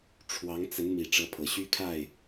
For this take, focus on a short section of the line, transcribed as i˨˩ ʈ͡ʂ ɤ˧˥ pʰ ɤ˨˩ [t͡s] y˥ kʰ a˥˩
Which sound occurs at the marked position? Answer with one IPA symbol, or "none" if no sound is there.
ɕ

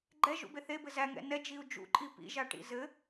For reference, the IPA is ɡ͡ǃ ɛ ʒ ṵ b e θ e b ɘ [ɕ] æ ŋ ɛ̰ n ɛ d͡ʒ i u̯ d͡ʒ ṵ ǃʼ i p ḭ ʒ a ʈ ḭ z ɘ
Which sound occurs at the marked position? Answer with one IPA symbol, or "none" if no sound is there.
z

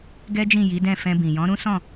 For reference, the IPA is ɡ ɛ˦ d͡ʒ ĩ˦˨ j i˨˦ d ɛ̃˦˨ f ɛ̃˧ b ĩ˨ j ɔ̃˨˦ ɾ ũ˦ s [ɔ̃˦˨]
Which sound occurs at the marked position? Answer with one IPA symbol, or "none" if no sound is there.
ɔ̃˦˨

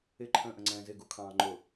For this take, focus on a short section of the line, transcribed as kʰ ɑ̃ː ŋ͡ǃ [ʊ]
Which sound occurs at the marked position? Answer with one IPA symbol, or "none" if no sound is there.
ʊ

